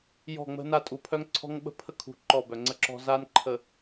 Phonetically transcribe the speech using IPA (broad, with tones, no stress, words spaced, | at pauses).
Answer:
jɔ̤˦˨ ŋ͡mə̤˦na˦ tʼu˨pʰœ˦ŋǀʰɔ̤˦ŋɓə̤˦˨ pʰə˦kʰṳ˨ ǃɔ˦˨bœ˨ŋ͡ǀə˦ǁɔ̤˦ za˦nǃʰə˨